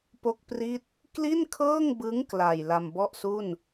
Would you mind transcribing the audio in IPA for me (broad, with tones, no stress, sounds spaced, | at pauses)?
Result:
p o˥˩ k̚ p r i˥˩ t̚ | k l i˥˩ n kʰ ɤː˥˩ ŋ b ɯ˦˥ ŋ k l a˨˩ j l a˧ m b ɔ˥˩ ʔ s u˥˩ n